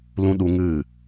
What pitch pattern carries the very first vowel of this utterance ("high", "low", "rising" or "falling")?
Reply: high